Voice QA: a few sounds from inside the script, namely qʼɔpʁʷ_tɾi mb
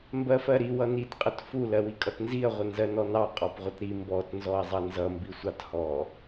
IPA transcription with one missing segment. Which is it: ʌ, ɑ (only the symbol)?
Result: ʌ